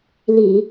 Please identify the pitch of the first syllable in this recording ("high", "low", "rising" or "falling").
low